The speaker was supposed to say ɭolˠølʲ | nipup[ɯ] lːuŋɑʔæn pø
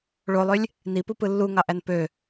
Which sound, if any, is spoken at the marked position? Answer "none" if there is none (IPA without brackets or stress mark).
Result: ɯ